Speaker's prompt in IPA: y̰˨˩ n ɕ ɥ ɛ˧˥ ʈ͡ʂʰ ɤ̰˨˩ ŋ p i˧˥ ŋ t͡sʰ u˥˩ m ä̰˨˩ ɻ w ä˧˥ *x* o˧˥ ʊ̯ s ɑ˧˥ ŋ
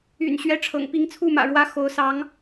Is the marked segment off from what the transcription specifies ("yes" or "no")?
no